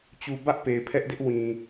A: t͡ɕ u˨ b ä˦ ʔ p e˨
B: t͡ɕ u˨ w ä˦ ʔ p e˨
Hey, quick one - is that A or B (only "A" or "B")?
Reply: A